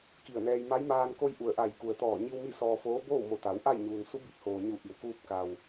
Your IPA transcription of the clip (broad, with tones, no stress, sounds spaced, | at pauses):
k i˧˩ ə̯ n ɛː˧ j m a˧˥ j m aː˧ n k o˧ j ʔ u˧˩ ə̯ ʔ a˧˩ j k u˩ ə̯ t̪ ɔː˧˩ ɲ i˧ w m i˥˨ s ɔː˧ f oː˧˥ b oː˥˨ w m o˧˩ t̪ a˩˧ w ʔ a˥˨ j ɲ uː˩ n s u˧˥ b i˧˩ p̚ h oː˩ ɲ u˧˩ ʔ i˩ w k uː˧ p̚ k a˩ w